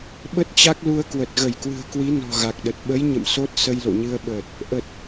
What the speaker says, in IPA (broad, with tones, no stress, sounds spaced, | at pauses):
ɓ ə˦˥ t̚ t͡ɕ a˦˥ k̚ l u˧ ə̯ k w ə˨˩ t̚ ɣ ə˧˩ j k w ɨ̤˨˩ ə̯ k w i˨˦ n ɔ̤˨˩ ɣ a˨˩ k̚ ɗ ə˨˩ t̚ ɓ ə˨˦ j ɲ ə̰˧˨ m s o˦˥ t̚ s ə˧ j l o̰˧˨ ɲ ɨ˧ ə̯ ɓ əː˨˩ t̚ | ʔ ə˨˩ t̚